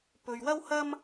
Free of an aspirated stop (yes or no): yes